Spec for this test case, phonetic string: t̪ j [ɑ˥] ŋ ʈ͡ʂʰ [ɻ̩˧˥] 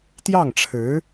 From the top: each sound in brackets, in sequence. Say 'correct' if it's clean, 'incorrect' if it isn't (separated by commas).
incorrect, correct